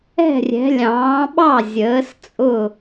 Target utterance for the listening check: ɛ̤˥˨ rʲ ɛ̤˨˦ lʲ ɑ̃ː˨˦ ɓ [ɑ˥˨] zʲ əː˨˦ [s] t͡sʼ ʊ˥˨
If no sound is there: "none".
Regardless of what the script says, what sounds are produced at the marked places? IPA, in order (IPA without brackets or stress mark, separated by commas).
ɑ˥˨, s